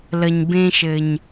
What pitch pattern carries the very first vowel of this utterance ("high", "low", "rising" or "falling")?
low